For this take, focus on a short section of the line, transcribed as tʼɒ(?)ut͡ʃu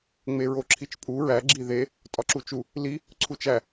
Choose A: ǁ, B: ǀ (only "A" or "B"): A